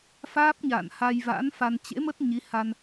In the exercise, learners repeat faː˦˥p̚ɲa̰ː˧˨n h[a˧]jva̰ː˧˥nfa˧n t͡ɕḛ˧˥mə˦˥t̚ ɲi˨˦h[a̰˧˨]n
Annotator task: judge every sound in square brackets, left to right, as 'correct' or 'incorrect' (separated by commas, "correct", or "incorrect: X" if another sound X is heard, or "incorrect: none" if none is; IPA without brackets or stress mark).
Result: correct, incorrect: a˧